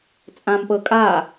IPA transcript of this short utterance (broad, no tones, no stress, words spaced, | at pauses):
t͡sʼãmpɤ kʼa